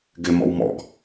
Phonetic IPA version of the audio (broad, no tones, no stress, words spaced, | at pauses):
ɡɪmɔ̰w mɔ̰ɡ